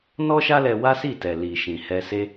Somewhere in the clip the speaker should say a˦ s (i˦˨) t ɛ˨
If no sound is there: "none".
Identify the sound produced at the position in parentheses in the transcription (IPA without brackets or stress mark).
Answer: i˦˨